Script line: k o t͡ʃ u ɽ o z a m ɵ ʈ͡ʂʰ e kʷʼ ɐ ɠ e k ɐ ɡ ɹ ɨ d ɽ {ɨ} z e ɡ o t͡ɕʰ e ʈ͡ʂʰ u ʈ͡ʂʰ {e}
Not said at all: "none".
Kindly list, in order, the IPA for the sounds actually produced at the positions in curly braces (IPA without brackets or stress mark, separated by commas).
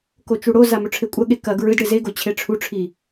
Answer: ɨ, i